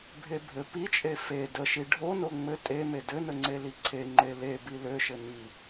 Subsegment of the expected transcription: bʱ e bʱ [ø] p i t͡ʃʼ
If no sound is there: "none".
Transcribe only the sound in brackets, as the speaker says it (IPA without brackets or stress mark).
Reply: ɘ